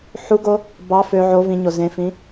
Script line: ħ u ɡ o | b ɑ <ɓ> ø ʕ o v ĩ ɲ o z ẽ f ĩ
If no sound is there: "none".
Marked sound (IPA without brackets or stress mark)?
f